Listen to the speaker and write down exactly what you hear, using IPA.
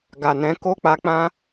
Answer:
ɡ a˨ n ɛ̃˨˦ k o˦ k͡p a˧ k͡p ã˦

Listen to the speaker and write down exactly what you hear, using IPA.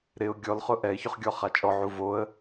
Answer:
ɾ ɪ ʊ̯ ɡʲ ɔ l χ ʊ ʔ ɛ ɪ̯ ç ʊ χ ɡʲ ɔ χ a t͡ʃʼ ɔ ʕ u v o ə̯

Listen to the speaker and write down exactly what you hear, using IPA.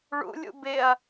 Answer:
ɭ ṵ lʲ ṵ b ɪ ɐ̯

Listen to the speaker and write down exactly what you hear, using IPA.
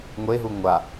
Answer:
ŋʷ e ɦ u ŋʷ a

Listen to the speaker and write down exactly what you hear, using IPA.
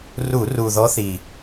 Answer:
r u˧˩˧ r u˨˩ ð ɔ˧˥ θ i˨˩

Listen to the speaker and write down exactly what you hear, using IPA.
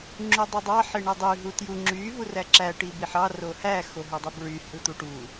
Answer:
ŋ͡ǁ u dˤ ɯ dˤ ɑ ħ e ɳ e dˤ y ɦ u t j u ŋ͡ǁ y v u r æ ǁ æ ʈ i b i ħ ɑ r o h æ x o ɦ u dˤ i b ɹ y h ɯ t̪ u ʈ u

